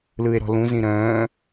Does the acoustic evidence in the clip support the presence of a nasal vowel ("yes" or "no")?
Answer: yes